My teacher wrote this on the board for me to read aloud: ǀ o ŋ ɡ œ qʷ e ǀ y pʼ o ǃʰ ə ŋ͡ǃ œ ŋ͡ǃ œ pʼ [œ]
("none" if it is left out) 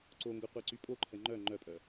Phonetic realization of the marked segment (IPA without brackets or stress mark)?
œ